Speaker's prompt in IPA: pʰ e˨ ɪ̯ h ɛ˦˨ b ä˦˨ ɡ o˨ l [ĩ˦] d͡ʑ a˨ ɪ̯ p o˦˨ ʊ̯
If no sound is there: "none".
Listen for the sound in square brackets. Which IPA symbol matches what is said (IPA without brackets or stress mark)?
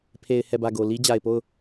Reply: i˦